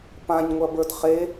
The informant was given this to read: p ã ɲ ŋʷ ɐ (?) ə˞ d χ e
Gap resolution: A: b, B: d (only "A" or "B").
A